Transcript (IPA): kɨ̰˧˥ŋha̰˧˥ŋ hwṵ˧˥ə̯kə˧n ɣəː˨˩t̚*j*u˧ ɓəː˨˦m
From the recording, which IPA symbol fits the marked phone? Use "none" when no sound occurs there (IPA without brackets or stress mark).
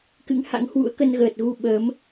ɣ